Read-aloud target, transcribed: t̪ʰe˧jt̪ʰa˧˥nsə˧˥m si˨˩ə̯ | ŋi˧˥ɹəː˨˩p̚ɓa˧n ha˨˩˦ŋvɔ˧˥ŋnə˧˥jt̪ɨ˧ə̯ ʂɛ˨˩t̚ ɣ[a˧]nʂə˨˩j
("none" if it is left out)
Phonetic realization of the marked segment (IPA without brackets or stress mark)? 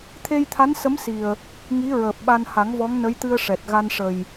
a˧